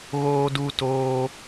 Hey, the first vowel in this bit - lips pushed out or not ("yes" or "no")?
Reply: yes